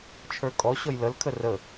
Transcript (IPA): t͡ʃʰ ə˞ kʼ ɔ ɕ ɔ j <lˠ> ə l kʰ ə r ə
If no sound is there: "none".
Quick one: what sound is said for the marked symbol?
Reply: l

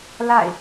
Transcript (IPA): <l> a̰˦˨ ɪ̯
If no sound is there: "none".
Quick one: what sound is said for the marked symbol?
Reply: l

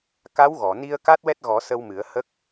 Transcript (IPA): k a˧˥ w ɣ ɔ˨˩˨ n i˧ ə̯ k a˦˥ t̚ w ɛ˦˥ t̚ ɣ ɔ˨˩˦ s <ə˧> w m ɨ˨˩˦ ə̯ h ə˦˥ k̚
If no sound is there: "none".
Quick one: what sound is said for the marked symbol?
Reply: ə˧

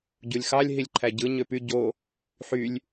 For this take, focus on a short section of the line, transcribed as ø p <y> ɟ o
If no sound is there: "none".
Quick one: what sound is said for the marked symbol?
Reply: y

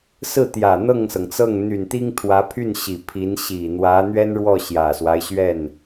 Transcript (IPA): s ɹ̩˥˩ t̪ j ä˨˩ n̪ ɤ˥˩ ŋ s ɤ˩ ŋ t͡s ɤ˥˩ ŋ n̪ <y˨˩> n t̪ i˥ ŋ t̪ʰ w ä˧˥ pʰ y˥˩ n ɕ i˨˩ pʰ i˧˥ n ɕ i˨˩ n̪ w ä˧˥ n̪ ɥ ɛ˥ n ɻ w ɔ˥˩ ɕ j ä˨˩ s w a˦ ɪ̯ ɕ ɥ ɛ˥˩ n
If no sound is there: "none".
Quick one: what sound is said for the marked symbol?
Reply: y˨˩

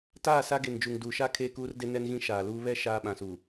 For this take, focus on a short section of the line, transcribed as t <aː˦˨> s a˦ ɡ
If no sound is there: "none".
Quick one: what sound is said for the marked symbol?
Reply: aː˦˨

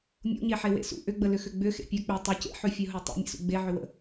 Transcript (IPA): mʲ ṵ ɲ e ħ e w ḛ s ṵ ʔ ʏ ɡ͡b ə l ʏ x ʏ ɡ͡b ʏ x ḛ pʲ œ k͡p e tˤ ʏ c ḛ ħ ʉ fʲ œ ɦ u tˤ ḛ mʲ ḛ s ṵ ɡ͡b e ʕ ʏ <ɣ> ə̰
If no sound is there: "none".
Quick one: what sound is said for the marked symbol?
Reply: w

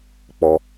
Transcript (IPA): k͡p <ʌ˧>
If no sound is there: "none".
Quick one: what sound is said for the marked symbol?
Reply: ɔ˧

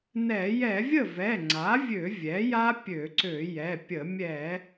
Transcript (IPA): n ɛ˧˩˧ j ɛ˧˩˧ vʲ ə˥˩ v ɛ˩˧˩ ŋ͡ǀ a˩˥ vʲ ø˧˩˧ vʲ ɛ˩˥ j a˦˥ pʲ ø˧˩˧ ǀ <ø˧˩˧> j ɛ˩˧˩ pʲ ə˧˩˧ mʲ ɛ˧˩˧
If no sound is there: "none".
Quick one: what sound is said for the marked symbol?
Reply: ø˧˩˧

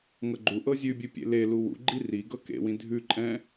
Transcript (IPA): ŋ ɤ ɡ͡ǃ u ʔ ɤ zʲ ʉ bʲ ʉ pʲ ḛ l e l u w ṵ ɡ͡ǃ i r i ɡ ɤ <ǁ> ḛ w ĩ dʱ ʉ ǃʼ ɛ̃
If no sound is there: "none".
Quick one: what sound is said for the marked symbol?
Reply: k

